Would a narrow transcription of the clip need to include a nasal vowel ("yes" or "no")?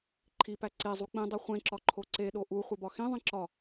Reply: yes